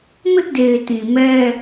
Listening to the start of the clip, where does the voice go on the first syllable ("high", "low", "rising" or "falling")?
high